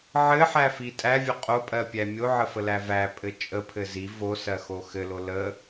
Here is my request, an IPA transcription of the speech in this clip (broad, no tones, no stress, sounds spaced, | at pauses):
ʕ ɘ ħ æ f i tʼ æ vʲ o qʼ o pʼ ɜ pʲ æ mʲ o ʕ ə f ə l æ v æ pʼ ɘ t͡ʃʼ ə pʰ ɘ z i v o s ɜ x o x ɘ l o l ə